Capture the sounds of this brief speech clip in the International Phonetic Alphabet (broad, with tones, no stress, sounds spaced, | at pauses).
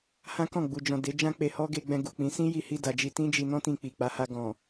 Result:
h ã˦ k ɔ̃˦˨ ɡ͡b u˨ d͡ʒ ɔ̃˨ d e˨˦ d͡ʒ ã˦ k͡p e˧ h ɔ˦ ɡ e˧ ɡ͡b ɛ̃˧ ɡ u˨ k͡p ĩ˨˦ s ĩ˦ j i˧ h i˧ d a˨ d͡ʒ i˧ t ĩ˦ d͡ʒ i˧ n ɔ̃˦ t ĩ˧ k͡p i˨ k͡p a˨˦ h a˧ ɡ ɔ̃˨